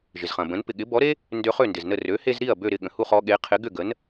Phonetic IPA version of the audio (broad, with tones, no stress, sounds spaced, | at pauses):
ʒ ɪ˩ z χ ɐ̃˩ b ə̃˩˥ n p ɪ˩ ɠ ɪ˩˥ b ɔ˩˥ ɾ e˥ | n d ø˧ χ ø˥˩ n d ɪ˩ z n ə˥˩ r ø˩˥ h e˧ z ɾ i˥˩ ɐ̯ b ø˥˩ ɾ ɪ˥˩ ɠ ə̃˩ h u˥˩ χ ɔ˧ ɠ e˩˥ qʰ ɪ˩˥ ɡ ʏ˥˩ ɡ ə˩˥ n